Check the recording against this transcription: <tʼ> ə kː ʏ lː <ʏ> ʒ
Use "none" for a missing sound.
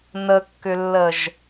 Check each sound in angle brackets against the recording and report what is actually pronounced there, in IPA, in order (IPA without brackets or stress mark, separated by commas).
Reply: n, ə